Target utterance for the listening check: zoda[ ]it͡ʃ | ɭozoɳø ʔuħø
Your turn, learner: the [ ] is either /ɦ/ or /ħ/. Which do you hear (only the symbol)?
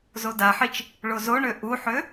ħ